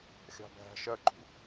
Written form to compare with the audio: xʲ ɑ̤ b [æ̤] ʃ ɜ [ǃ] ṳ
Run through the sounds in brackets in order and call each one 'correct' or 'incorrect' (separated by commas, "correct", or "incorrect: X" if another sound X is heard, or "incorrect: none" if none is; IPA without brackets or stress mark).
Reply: correct, correct